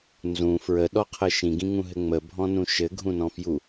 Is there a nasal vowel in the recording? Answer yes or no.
yes